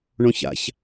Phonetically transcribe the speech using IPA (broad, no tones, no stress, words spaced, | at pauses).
ɳõça̰ç